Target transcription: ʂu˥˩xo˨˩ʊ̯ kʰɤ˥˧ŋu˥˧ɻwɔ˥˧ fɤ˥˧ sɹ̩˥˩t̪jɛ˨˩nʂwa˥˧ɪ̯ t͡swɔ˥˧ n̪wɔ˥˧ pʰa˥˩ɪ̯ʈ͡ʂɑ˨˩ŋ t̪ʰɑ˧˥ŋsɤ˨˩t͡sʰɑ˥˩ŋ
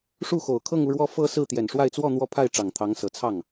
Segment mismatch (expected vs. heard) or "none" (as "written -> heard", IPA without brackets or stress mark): none